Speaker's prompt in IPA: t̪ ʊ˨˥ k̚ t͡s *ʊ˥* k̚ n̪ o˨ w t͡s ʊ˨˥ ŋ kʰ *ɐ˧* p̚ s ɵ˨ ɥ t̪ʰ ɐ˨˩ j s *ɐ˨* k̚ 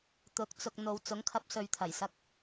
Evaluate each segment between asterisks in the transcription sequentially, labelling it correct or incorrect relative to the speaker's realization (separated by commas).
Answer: incorrect, correct, correct